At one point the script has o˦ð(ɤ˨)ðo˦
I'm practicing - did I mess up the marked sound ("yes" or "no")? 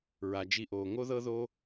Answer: yes